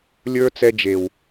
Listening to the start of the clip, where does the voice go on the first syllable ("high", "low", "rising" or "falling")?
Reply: high